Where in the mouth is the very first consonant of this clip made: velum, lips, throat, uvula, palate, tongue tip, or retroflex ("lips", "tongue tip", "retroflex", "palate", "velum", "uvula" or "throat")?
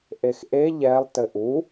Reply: throat